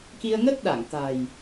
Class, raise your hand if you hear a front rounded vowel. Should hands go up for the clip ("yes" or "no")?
no